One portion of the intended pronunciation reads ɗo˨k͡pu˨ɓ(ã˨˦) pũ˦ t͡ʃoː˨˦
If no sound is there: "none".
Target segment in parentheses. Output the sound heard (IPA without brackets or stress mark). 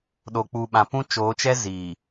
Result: ã˨